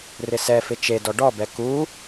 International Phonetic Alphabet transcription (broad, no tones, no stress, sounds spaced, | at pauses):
r ɪ s ɛ f ɪ t͡ʃ e d ɔ ɖ ɔ b ɛ k u